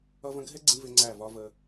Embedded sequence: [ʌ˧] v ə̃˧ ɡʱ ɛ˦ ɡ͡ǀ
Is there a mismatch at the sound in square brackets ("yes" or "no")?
no